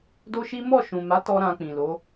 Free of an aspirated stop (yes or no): yes